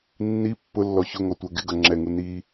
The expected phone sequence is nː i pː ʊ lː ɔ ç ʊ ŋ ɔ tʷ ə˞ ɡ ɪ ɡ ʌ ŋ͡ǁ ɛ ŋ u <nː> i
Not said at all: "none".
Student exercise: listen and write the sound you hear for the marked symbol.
n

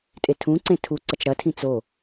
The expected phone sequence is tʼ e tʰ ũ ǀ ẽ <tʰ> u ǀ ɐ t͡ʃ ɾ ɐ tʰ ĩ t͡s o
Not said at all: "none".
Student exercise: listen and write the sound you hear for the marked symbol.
tʰ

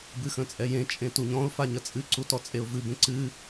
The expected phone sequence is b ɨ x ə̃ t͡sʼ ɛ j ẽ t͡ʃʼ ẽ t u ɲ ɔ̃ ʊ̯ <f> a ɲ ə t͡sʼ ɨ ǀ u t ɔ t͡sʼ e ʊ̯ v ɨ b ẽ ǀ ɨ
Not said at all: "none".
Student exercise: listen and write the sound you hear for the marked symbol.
f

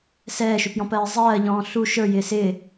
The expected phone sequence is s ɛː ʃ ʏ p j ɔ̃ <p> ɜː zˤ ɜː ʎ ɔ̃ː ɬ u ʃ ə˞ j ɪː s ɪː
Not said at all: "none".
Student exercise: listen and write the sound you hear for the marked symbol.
p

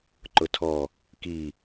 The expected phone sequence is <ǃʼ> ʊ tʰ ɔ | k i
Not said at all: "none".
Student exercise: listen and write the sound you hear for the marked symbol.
ǃ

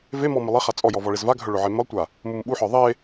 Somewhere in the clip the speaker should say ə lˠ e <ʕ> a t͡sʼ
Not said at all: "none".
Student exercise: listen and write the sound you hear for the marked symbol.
χ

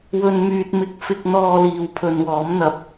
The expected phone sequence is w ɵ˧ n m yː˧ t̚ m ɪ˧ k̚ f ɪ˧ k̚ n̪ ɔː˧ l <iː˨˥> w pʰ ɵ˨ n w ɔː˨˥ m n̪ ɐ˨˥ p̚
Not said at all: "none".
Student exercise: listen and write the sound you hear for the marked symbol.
iː˨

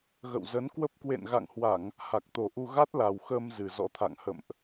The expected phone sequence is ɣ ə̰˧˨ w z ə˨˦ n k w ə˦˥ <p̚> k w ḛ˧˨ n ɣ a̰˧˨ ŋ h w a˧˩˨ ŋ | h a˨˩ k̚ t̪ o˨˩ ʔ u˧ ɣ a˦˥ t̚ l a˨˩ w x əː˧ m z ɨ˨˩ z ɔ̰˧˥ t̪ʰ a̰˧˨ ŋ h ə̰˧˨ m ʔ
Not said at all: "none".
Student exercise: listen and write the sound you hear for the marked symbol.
p̚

